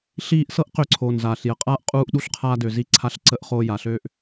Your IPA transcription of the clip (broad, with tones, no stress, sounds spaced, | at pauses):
ɬ iː˧ ʔ s ɤ˦ ʔ q ø˧ ǀʰ oː˨ n z aː˨ ɬ j ə˨ qʼ aː˦ ʔ qʼ uː˧ ʔ ɗ u˧ ɬ qʰ aː˧ d ø˨ z i˧ ǀʰ a˧ ɬ ǀ ə˧ ʔ χ oː˧ j a˨ ɬ øː˦ ʔ